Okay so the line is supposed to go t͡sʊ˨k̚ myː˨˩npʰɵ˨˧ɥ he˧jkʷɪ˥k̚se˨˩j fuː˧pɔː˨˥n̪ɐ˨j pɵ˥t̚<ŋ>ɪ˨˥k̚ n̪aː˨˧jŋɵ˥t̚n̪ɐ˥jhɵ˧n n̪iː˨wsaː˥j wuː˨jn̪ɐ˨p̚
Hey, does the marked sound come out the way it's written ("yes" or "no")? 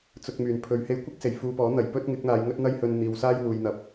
yes